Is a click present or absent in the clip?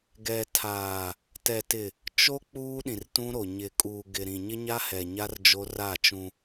absent